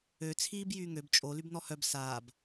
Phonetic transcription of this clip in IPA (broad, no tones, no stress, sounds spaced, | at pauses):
ø t͡sʰ iː b j yː ŋ ø b t͡ʃʼ o l y b n ɔ h œ b s aː b